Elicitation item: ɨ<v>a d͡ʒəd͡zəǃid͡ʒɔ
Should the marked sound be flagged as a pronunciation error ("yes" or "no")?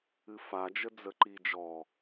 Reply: yes